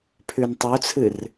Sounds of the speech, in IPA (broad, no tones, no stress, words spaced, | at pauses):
pʰʉntˤut͡sʰɨr